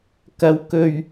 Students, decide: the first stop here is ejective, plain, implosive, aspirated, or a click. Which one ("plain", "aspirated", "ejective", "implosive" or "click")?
plain